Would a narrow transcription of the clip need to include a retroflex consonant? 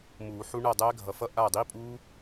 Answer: yes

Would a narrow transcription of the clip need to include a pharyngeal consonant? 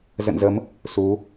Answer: no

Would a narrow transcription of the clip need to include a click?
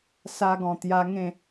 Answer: no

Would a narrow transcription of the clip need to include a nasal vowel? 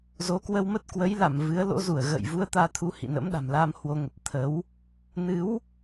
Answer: no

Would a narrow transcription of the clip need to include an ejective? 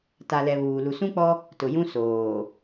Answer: no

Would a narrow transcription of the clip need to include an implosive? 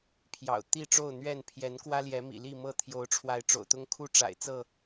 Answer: no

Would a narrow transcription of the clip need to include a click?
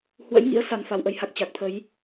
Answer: no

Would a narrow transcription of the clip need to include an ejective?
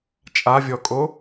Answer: yes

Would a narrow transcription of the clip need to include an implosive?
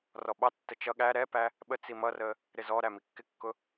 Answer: yes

